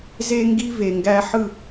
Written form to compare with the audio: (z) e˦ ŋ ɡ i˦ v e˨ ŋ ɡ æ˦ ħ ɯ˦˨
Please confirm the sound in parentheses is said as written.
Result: yes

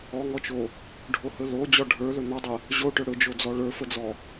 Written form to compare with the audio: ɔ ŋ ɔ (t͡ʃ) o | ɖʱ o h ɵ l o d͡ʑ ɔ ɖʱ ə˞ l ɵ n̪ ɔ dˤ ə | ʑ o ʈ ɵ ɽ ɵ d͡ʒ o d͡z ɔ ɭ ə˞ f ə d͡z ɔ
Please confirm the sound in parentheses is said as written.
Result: yes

